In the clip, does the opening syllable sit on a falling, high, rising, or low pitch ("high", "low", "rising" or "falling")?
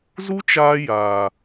high